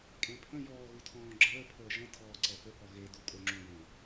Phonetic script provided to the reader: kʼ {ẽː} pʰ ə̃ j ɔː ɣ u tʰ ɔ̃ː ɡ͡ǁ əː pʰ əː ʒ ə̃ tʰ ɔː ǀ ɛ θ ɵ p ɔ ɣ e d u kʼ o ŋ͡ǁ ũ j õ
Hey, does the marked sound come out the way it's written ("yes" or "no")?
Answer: no